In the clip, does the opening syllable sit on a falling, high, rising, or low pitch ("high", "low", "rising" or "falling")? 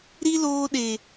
high